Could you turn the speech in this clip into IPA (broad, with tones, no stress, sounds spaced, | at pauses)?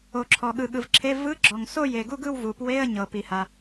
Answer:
o˩ ǁʰ ɔ˩ ɠ ɯ˩ ɠ ɯ˩ v ǁʰ e˧˥˧ v ɯ˧˥˧ ɡ͡ǁ ɔ˩ ŋ s o˥˧ j e˩ ɡ u˥˧ ɡ ɯ˥˧ w v u˩ p w e˧˥˧ ə̯ ɲ ɤ˩ p i˩ h a˩